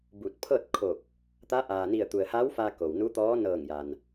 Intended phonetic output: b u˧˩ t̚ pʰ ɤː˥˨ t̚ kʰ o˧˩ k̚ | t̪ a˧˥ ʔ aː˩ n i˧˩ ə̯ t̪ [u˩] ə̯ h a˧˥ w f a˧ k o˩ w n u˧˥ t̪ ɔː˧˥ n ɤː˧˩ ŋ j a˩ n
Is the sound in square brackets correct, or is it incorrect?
correct